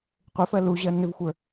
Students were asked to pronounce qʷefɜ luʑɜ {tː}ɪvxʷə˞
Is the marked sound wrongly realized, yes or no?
yes